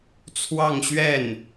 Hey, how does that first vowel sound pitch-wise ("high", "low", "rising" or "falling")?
falling